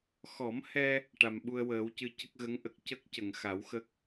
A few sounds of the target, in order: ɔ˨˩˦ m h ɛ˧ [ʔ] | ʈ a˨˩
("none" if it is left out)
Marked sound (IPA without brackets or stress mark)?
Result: none